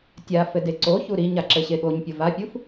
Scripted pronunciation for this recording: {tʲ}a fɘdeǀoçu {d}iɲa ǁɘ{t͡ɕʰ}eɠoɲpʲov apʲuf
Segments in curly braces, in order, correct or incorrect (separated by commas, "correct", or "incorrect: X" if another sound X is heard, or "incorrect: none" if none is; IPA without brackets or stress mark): correct, incorrect: ɾ, incorrect: ɕ